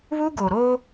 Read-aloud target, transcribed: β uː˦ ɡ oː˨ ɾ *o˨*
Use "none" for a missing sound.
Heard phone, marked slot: o˦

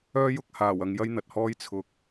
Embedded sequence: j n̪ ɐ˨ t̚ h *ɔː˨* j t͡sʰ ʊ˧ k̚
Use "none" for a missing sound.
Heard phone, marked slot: ɔː˥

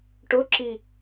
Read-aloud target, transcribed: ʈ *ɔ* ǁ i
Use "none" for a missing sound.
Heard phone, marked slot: ʊ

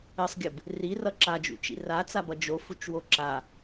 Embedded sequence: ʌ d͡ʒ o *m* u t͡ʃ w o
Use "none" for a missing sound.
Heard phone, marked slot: f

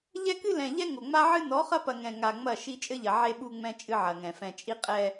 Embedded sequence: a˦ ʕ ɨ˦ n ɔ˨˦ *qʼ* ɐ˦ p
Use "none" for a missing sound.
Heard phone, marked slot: χ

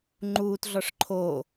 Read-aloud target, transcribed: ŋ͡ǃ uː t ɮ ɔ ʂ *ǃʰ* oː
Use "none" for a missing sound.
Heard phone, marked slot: ǃʰ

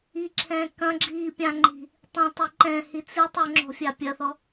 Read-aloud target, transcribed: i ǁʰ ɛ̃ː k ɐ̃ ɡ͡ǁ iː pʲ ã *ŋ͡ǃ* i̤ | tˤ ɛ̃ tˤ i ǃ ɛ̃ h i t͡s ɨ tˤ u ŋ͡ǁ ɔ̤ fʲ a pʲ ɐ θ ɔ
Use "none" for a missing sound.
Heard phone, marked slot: ŋ͡ǃ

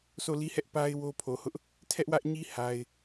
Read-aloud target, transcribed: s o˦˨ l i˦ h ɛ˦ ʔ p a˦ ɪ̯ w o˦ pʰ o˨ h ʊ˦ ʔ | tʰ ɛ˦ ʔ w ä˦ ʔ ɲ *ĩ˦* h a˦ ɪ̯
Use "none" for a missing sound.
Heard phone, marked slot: i˦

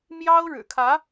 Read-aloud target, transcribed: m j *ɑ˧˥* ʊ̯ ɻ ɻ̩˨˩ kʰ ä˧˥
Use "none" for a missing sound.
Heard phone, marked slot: ɑ˥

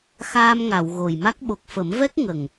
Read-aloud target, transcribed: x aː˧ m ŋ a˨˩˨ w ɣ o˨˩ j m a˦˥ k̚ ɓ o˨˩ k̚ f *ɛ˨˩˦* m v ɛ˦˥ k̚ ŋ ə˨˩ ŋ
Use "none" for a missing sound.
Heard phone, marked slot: ə˨˩˦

